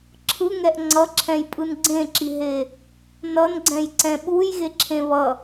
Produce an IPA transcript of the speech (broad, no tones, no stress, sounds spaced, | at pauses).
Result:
ǁʰ ɯ ŋ ɛ ʔ ŋ͡ǀ ʌ ǁʰ ɛ̃ j pʼ ɯ n ɡ͡ǀ ẽ ǁ i ɦ e | n ʌ n ɡ͡ǀ ɛ̃ j ǀ ɛ̃ ɓ u j ɣ e ǁʰ ẽ β ʌ